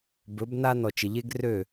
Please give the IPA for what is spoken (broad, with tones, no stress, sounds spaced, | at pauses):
b ɵ˨˦ b n a˦ n ɔ˨ t͡ʃ ɪ˨ ʎ e˦ ɡ r ø˦˨